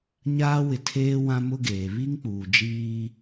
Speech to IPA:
ɲ aː˦ w ɪ˨ tʰ eː˦ w ã˦ m ʊ˦ ɡ eː˨ β i˦ ŋ k͡p uː˨ d͡ʒ iː˦

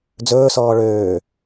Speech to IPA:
d͡z ɵː s ɔː ɭ øː

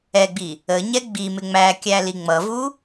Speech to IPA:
ɛ ɡ͡b i | ə ɲ ɛ ɡ͡b i m ɪ ŋ͡m æ kʲ æ l i ŋ͡m ʌ v u

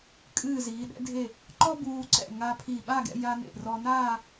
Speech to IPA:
kʼ ɨː˧˩ z iː˩˧ ɗ ɛ̰˧ dʱ e˧˩ | ǃ ɔ˥ b uː˧ ǀ ɛ̰˧˩ ŋ a˧ pʰ iː˧˩ ɓ a˥˧ ɡ ɛ̰˧ j a˧ n ḛ˧˩ r ɔ˧ n aː˥˧

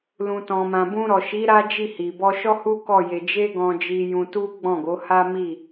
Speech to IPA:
l ũ˨ t ɔ̃˨ m ã˨ b ũ˧ ɾ ɔ˨ ʃ i˨˦ ɾ a˦ d͡ʒ i˦˨ h i˨ b ɔ˧ ʃ ɔ˦ h u˦ k ɔ˦˨ j e˧ d͡ʒ e˦ ɡ ɔ̃˧ d͡ʒ i˧ j ũ˧ t u˦ ɡ͡b ɔ̃˦˨ ɡ o˨˦ h a˦ m i˦˨

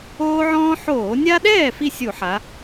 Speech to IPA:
oː˦ ʕ ɔ̃ː˦ ħ oː˧˩˧ nʲ a˦ ɗ ɛː˥˩ f i˥˩ sʲ u˧˩˧ ħ a˩˧

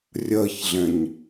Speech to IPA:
rʲ ɜ ç ɮ ɛ̃ ɲ

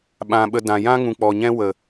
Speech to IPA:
ɓ ã˧ ɓ ə˧ d ã˨ j ã˦ ŋ ũ˨ k͡p ɔ˨ ɲ ɛ̃˦ w ə˨

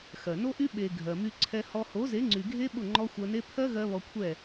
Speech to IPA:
x ɜ˨ n o˦ ʔ y˦ ɓ e˨ ɡʱ ɜ˨ m y˧ ǀʰ ɛ˧ h ɔ˧ h o˨˦ z e˨˦ ŋ͡ǀ y˨ ɡʱ e˦ ɓ ʊ˦˨ ŋ͡ǃ ɔ˦ xʷ ɜ˧ n e˦ pʰ ɜ˦ ɣ ɜ˧ β ɔ˧ kʷʰ ɛ˦˨

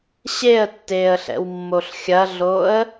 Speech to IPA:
ɕ e ə̯ tː eː ə̯ ɬ ɛ̰ w mː o ɬ xʲ ɐ ɮ o ə̯

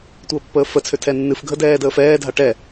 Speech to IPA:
tʷ əː pː əː f ə t͡sʰ ø tʰ ɛ nː ɨ f ɡʱ ə d ɛː d əː f ɛː dʱ a ʈ ɛ

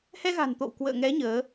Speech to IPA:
h ɛ˧ ɣ a̤˨˩ n t̪ o̰˧˨ w k w ə̰ː˧˨ ŋ ɛ˨˦ ɲ əː˨˦

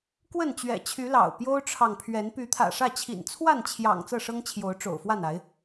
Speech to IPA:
k w ə˥˨ n t͡ɕ ɥ ɛ̰˨˩ t͡ɕʰ y˨˦ l ɑ̰˨˩ ʊ̯ p j o˦ ʊ̯ ʈ͡ʂʰ ɑ˨ ŋ pʰ ɥ ɛ˨˦ n p y˨˦ t̪ʰ ä̰˨˩ ʂ ä˥˨ t͡ɕʰ ḭ˨˩ n t͡sʰ w a˥˨ n t͡ɕʰ j ɑ̰˨˩ ŋ t͡s ɤ˥˨ ʂ ɤ˦ ŋ t͡ɕʰ j o˨˦ ʊ̯ ʈ͡ʂ o̰˨˩ ʊ̯ f w a˥˨ n a˨˦ ɪ̯

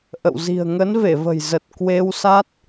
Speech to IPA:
ʔ ə̰˧˨ w z i̤˨˩ ə̯ ŋ ə˨˦ n v e˧˩ v ə̤˨˩ j z ə˨˩ t̚ k w e˧ w s a˦˥ t̚

